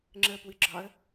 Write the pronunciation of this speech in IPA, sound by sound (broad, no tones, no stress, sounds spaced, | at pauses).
ŋ͡ǁ ə p w ɨ ɡ͡ǁ ɒ ə̯